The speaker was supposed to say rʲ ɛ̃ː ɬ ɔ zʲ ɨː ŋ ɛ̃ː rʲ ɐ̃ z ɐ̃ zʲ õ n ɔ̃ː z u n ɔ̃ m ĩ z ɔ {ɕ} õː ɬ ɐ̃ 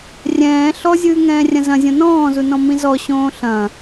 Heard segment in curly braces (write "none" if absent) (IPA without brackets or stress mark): ɕ